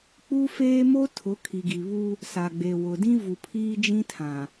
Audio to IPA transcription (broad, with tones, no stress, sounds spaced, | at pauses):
k͡p u˦ f eː˦ m o˦ tʰ ʊ˨˦ kʰ i˨ ɡ i˨ β u˦ | s a˨ ɡ͡b e˨ w ʊ˨ d ĩ˦ v u˨ pʰ iː˦ d͡ʒ ĩ˦ tʰ ã˨